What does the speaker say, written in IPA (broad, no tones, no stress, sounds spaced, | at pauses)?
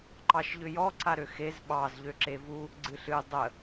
ǃ ɑ ʃ ʎ ʏ j ɔ ǀ a ɾ ø x e z ɓ ɑ z ʎ ø ǁ e v u | ɡ͡ǀ ɨ ɬ ɨ dˤ ə